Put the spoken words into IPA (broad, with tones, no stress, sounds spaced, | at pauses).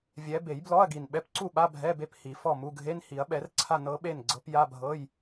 vʲ ɛ˧˥ b e˨˩˦ j b l ɔ˧˥˧ ɐ̯ ɡ i˨˩ n ɓ ɛ˧˥ p ǀ u˥˨ ɓ a˧˥˧ bʱ ɛ˧˥˧ b e˥˨ p h i˨˩˦ f ɔ˥˨ m u˧˥˧ ɡʱ e˧˥˧ n h i˨˩˦ ɐ̯ ɓ ɛ˨˩˦ r ǀʰ a˥˨ n ɤ˧˥ ɓ e˥˨ n ɡ͡ǀ ɤ˧˥ p j a˧˥˧ bʱ ɤ˧˥˧ j